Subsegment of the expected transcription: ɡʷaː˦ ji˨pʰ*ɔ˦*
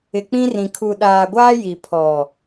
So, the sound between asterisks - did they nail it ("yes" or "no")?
no